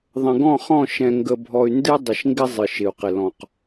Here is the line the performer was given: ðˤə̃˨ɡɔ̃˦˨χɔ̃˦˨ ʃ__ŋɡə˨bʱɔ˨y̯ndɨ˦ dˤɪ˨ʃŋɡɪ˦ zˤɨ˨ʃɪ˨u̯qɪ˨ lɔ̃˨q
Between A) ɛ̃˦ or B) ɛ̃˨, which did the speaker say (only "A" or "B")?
B